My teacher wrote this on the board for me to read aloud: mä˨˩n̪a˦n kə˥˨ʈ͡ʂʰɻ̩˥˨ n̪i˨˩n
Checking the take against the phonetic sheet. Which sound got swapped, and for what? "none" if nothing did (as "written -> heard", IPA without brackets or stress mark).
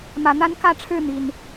ə˥˨ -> ä˥˨